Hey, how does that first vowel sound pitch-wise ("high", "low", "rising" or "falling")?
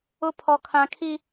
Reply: high